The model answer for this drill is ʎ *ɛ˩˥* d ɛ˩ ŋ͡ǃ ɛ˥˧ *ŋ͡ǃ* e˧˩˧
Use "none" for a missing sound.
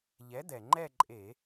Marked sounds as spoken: ɛ˩˥, ǃʼ

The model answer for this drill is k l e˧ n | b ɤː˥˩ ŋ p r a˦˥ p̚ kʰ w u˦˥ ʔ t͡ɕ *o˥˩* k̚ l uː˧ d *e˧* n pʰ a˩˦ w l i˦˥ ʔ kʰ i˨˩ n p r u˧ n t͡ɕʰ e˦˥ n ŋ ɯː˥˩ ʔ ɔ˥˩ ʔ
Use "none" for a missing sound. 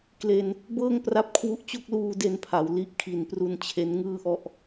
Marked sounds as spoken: o˥˩, e˧

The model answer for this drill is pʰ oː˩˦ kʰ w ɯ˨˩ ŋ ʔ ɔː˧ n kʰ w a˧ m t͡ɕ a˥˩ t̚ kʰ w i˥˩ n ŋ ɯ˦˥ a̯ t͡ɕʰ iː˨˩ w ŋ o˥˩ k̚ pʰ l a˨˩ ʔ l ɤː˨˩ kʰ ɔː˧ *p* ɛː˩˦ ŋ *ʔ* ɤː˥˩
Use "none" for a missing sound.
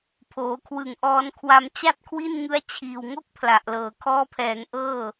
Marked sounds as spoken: pʰ, ʔ

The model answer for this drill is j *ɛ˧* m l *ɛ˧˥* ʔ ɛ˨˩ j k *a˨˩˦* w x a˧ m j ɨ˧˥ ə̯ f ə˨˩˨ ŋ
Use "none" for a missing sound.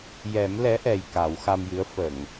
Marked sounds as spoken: ɛ˨˩˦, ɛ˧˥, a˨˩˦

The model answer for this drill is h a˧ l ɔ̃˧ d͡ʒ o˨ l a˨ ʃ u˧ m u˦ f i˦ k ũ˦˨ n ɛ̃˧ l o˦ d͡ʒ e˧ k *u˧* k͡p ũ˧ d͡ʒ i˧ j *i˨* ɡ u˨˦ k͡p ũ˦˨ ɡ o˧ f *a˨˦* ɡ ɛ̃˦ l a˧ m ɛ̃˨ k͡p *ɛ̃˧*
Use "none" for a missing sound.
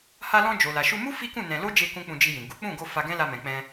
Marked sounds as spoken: ũ˧, ĩ˨, a˧, ɛ̃˧

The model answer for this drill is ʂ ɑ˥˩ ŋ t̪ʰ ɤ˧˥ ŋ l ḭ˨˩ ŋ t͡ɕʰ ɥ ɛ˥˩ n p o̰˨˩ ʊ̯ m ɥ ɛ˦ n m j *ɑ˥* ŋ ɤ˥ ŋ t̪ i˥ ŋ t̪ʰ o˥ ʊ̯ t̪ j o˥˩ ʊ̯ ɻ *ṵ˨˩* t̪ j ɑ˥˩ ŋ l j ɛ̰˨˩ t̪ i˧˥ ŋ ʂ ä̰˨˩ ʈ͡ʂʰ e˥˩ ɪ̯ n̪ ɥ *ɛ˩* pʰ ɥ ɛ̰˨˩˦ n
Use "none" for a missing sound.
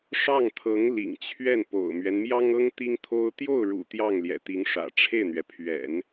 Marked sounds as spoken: ɑ˥, ṵ˨˩, ɛ˩

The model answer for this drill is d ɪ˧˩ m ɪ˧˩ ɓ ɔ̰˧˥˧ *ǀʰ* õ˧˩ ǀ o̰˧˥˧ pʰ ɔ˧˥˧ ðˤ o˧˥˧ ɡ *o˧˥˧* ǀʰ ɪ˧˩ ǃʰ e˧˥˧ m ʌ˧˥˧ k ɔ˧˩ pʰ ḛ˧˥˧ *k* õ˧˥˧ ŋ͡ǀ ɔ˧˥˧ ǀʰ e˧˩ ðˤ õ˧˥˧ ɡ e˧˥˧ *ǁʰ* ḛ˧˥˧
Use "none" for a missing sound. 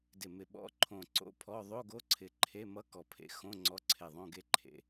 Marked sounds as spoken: ǃʰ, o˧˥˧, x, ǃʰ

